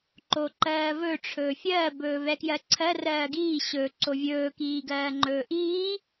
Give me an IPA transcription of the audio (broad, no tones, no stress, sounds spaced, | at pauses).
ǃ o ǃ ɜː v ɵ ʈ͡ʂʰ ɵː fʲ ɜː b ɵː v ɛ k j ɜ ǀʰ ɜ r ɜː ɡ iː ɕ ɵ ǀ o vʲ ɵː k iː ɡ ɜː ŋ͡ǃ ɵː ʔ iː